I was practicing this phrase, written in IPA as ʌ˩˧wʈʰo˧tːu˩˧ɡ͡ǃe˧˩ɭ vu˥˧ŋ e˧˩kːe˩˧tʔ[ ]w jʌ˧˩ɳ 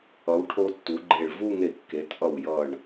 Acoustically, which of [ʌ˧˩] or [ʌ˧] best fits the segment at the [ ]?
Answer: ʌ˧˩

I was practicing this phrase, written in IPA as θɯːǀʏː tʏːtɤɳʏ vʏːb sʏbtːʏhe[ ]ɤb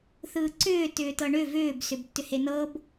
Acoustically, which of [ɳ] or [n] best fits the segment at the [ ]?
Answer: n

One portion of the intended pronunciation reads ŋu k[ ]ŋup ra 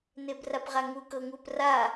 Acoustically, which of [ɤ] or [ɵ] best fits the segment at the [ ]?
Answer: ɤ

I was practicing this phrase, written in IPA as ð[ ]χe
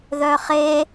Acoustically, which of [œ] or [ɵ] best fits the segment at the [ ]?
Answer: œ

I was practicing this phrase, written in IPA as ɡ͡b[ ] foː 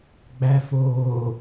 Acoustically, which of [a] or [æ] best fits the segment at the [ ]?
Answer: æ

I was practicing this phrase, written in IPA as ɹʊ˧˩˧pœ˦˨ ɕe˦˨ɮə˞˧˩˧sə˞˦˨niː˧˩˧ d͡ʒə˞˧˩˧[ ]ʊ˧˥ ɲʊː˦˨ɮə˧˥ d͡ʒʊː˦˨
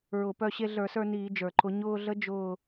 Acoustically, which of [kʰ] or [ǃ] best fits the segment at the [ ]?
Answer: ǃ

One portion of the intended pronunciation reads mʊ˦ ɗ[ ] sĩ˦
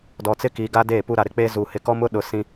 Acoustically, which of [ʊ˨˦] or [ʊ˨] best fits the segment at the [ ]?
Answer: ʊ˨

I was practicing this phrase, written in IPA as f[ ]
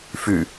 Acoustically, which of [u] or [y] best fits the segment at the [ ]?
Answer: y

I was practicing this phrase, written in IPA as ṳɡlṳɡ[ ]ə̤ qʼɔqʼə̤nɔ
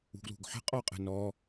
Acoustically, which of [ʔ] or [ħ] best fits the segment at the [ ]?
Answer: ħ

